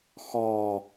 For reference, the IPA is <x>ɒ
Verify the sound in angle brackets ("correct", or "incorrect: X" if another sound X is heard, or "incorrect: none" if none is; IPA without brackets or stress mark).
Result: correct